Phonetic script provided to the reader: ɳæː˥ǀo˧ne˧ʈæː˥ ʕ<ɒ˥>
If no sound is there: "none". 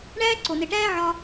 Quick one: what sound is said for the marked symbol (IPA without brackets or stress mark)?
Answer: ɒ˥